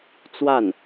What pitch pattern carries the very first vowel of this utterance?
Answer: falling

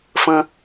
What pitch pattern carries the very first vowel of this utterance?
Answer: low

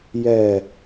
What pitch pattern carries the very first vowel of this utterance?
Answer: low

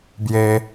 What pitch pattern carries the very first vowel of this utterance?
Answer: high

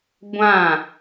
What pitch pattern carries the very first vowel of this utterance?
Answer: falling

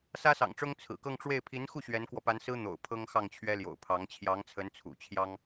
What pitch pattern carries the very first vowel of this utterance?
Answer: high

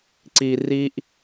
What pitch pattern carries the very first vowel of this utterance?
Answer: low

